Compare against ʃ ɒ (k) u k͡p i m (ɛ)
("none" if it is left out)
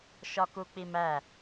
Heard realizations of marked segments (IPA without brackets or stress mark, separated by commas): k, æ